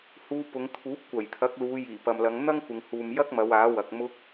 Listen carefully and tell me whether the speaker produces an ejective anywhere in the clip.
no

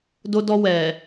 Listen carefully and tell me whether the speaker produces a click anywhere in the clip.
no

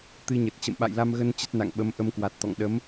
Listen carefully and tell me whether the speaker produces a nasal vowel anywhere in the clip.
no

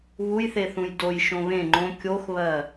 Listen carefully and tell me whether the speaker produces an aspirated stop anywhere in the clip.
no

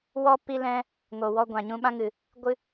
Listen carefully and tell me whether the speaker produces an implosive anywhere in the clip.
yes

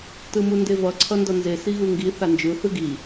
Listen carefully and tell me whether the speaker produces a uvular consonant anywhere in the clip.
no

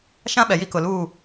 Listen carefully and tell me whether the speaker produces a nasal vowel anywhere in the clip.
yes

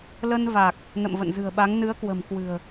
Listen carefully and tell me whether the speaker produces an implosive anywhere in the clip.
yes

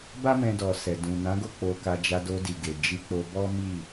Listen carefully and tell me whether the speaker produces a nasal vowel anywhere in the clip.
yes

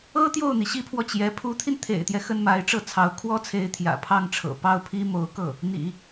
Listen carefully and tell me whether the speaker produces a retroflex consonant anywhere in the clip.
yes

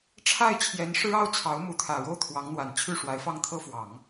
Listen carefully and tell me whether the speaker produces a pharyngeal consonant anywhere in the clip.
no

